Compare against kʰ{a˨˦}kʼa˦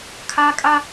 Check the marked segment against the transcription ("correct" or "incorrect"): incorrect